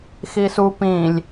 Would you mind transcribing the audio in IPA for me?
xisu pĩlʲ

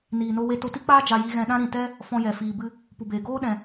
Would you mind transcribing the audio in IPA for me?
niː˨no˧we˧ to˧ti˦k͡paː˦ d͡ʒa˧ji˧ɣɛ̃˧ɗã˦ ɾĩ˨tɛ˦ | fɔ̃˧jɛ˨fiː˨ bɨ˧ | pu˨beː˨ ɡoː˦ɗɛ̃˨

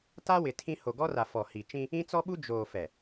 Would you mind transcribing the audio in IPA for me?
ta˦wɪ˨ tʰĩ˦ ho˨ɡɔ˦ra˨ fɔ˨hi˨ t͡ʃĩ˦ | ĩ˦t͡sɔ˦ɓu˦ d͡ʒoː˨ fɛ˨

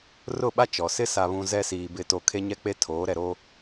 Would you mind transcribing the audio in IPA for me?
rʊ˦˨ɓa˦t͡ʃɔ˨ sɪ˦ sa˨βũ˨ zɛ˦siː˨ bɪ˨to˨ kʰe˦ɲɛ˦k͡pe˦tʰoː˨˦ ɾɛ˨ɾo˦

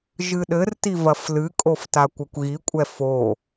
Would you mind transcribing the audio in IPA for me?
ʒɨɗɘrti vɐflɨkʼof takʷɐkʷɣikʷʼɛ fo

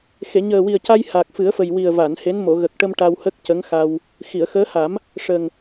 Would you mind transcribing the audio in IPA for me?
xe˨˩˨ ɲəː˨˩wi˨˩ə̯ca˧j ha˨˩k̚fɨ˨˩˦ə̯fə˨˩jwi˨˩ə̯ va˨˩˨nhe˧˥n mo˨˩˨ɣə˨˩k̚ʈə˧m ʈa˧whə˦˥k̚ cə˧˥ŋxa˧w | xi˨˩˨ə̯xəː˧˥ ha˨˩˦m | ʂə˨˩ŋ

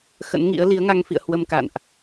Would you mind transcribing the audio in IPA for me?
xə̰˧˥nŋḭ˧˥ə̯ li˨˦ə̯ŋa˧ŋfḭ˧˨ə̯ hwə˧mka̰˧˨nʔ

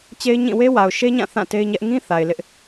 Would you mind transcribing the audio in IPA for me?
t͡ɕe˦ɪ̯ɲĩ˦˨ we˦wa˨ʊ̯ʃe˦ɲã˦˨ θã˦˨te˦ɪ̯ɲɛ˦ʔ ŋĩ˦ θa˨ɪ̯lɪ˦ʔ

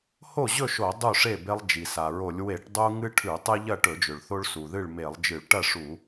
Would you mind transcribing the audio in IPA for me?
ho˥˨ʑɵ˥˨ʃo˧˩˧ dˤu˥˨ʂe˥˨be˦lˠ d͡ʒi˩sa˩ɹo˧˩˧lʲ we˧˩˧ʈdˤu˦ ŋɨ˦ʈʰʉ˧˩˧ tˤɨ˦ʎɐ˥˨ ʈɵ˧˩˧d͡ʒɵ˩ɭ θo˦ɭsu˩ðɨ˥˨ɭ me˧˩˧lˠd͡ʒɨ˧˩˧ɭ ʈɐ˥˨ʂu˧˩˧

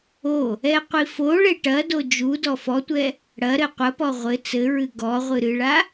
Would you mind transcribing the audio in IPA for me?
o | ɛqʷifoɭe ʈɐdo d͡ʒudɔ fɔtʷɛ | ɽɐɾɘ qʷɐpɔ ʁʷɘ t͡sɘɹɨ ɡɔʁʷɨ ɾɨɭa

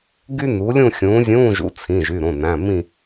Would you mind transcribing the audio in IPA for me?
ɡy˥nu˨˥lʲũ˥˧ xʲũː˨˥zʲũː˧˥˧ʒṵ˨˥ t͡sʰĩ˩˧˩ʒy˩˧˩ɾõ˩˧˩næ̃˩˧˩ mĩ˥˧

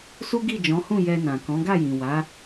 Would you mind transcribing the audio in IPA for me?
su˦ɡi˦˨d͡ʒɔ̃˨˦hũ˦˨ jɛ˧nã˨ kɔ̃˨˦ɡa˦˨jĩ˨wa˨˦

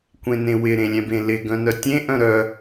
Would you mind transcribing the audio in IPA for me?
kʷẽnẽwɪ ɾẽlʲɛ̃bẽlɪ ɡœ̃nœtʲẽ ʔœ̃ɾœ

